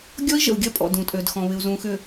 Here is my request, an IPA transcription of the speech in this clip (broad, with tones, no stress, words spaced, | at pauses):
ɡʲɔ˦i̯ʒə̰˨u̯ɡʲɐ˦pʼɔ̰˨ dũ˨tʼø˨dxɔ̃˨ βɪ˨u̯zũ˨ xʏ˨